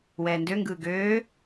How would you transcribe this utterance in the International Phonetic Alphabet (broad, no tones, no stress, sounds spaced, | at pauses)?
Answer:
w ɛː n d ø ŋ ɡ ɯː ɡ øː